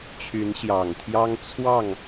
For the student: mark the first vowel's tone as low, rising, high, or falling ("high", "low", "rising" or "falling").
rising